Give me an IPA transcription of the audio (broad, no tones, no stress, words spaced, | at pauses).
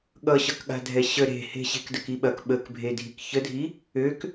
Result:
ɠʌɕʌkɠa̤ dʱɛɕə ɾe̤he̤ɕe̤k dəkiɓɐk ɓəkbʱedʱik çədʱi | øk